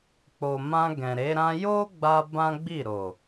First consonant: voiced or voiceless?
voiceless